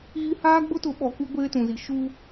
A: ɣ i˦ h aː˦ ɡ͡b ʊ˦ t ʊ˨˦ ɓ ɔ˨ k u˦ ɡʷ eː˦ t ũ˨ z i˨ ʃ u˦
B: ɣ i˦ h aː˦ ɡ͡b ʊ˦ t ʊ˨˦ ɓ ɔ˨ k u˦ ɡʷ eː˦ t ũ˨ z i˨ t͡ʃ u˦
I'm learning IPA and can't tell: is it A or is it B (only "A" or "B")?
A